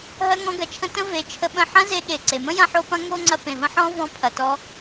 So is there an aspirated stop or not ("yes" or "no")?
yes